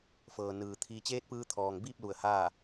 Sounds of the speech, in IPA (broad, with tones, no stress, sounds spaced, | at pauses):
f ɤː˩ n ɯː˩ t̪ʰ iː˧ t͡ɕ eː˧˥ t̚ p ɯː˧ t̪ʰ ɔː˩ ŋ b iː˥˨ p̚ l u˧˩ ə̯ h aː˥˨